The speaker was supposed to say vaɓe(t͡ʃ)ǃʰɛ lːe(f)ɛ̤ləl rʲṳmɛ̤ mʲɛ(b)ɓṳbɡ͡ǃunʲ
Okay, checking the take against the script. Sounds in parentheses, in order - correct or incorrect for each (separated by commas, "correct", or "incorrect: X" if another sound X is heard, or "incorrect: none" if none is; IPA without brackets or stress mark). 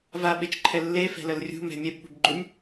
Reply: correct, correct, correct